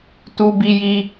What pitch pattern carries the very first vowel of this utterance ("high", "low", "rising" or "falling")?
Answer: high